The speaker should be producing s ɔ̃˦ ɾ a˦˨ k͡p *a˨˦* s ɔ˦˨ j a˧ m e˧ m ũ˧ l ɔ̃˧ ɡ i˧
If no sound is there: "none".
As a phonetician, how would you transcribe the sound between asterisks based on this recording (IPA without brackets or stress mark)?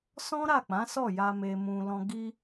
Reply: ã˨˦